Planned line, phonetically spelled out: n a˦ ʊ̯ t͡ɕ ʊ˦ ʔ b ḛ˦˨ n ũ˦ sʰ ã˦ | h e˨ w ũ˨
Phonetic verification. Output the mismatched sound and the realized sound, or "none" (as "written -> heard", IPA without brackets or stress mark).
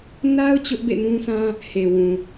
none